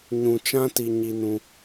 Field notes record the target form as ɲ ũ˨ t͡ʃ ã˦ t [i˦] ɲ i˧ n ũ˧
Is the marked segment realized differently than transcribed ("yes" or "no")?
yes